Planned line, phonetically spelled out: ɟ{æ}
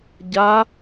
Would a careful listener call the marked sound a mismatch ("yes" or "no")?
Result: yes